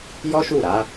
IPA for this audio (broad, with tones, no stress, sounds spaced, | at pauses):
j ɔ˦ ʃ u˦˨ ɾ a˨˦